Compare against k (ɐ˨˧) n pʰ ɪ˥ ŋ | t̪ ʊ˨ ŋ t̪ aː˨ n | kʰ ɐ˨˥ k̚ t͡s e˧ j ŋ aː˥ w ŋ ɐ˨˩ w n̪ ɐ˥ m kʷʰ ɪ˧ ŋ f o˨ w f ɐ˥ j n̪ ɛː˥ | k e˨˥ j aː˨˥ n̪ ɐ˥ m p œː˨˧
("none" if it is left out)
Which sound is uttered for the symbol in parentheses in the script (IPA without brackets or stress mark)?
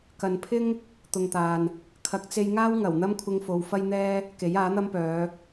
ɐ˨